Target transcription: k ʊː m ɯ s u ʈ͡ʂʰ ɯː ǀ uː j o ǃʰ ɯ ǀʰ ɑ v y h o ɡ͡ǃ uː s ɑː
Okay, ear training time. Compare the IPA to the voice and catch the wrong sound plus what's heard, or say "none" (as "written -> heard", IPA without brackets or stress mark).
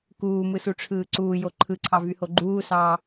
ʊː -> uː